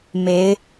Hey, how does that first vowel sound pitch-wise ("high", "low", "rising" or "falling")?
rising